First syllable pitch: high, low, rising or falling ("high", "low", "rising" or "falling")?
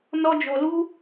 high